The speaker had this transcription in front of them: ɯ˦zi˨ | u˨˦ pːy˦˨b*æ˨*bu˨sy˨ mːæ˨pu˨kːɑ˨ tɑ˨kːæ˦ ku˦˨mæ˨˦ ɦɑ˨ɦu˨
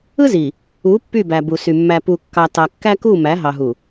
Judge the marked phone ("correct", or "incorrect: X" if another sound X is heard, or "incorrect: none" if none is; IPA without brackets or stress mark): correct